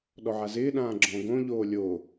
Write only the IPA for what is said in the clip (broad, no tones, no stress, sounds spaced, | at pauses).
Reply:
ɗ ɔ ʕ a z ɪː ɗ ãː ɡ͡ǁ ɔ̃ ɡ õ ʎ oː lʲ o